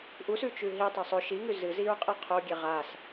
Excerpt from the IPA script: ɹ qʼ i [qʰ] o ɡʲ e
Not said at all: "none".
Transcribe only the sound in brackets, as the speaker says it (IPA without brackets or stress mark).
qʰ